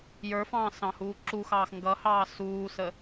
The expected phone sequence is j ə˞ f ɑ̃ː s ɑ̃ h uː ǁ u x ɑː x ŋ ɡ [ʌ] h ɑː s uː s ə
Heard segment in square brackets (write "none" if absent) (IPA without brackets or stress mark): ʌ